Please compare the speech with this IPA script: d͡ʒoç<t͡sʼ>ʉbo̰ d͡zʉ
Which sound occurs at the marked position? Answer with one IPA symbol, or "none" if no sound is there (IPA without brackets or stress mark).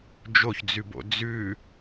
d͡z